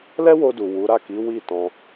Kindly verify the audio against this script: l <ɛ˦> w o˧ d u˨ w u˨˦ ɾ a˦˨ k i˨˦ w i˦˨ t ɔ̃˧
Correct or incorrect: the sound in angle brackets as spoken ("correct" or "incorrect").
correct